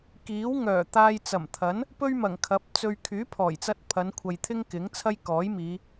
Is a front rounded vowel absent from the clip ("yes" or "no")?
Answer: no